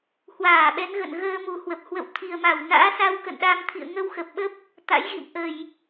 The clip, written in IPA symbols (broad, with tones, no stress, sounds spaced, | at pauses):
h w aː˧˩ ɓ ɛ˨˦ n ɣ ə̰˧˨ n ɣ əː˧ m u˨˩ h w ə˨˩ p̚ h w ə̰˧˨ w t̪ʰ i˨˩ ə̯ m a˧˩ w n a̰ː˧˥ s a˧ w k ə̰˧˨ n ɗ a˧ m t̪ʰ ḭ˧˨ ə̯ ŋ ə˧ w x ə˨˩ p̚ ɓ ə˦˥ p̚ | t̪ a̰˧˥ j ɣ ḭ˧˨ m ʔ ə˧˩˨ j